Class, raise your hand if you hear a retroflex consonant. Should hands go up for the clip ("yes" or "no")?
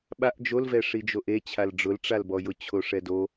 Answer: yes